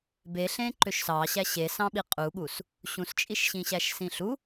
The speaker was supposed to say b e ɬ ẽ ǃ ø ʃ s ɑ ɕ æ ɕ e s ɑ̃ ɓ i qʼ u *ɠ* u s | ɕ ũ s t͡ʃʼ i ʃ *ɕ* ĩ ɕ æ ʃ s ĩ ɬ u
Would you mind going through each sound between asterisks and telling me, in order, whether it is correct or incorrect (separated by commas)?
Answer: correct, correct